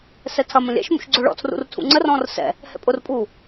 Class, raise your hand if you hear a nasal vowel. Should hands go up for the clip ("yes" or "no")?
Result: yes